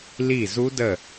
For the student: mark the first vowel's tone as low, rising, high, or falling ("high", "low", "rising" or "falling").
falling